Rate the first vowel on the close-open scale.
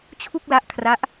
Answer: close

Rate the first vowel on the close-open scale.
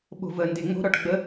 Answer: mid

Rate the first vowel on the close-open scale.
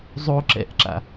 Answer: mid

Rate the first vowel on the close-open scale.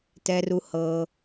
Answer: mid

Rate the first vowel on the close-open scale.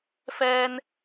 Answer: mid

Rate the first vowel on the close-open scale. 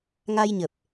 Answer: open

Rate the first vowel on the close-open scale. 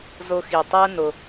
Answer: close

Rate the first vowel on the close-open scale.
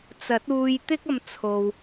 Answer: open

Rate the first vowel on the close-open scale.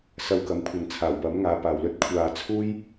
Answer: open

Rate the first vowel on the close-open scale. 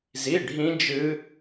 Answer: close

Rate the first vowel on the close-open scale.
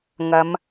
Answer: open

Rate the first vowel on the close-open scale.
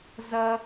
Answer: open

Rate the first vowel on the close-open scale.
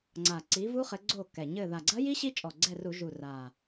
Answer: open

